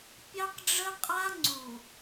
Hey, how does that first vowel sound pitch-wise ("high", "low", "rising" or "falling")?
high